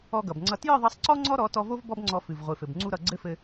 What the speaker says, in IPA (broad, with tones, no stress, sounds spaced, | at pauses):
ɔ˧ ɡ ʌ˨ b ŋ͡ǀ ʌ˧ t j ɨ˦˨ ðˤ ʌ˧ sˤ ǀ ɔ˦ ŋ͡ǀ ɔ˦ ɾ ɔ˨˦ t ɔ˧ v o˦ v b ɔ˦ b ŋ͡ǀ ɔ˧ f ɨ˨ v ʁʷ ɨ˨ f ɘ˨ b ŋ͡ǀ u˦ ɾ ʌ˧ ɡ͡ǀ ɘ˦ f ɘ˧